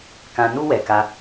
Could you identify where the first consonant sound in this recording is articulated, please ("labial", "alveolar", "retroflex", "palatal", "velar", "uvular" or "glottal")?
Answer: velar